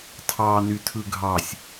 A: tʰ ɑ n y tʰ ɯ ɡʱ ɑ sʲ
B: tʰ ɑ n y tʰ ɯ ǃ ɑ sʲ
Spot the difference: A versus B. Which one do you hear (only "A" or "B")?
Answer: A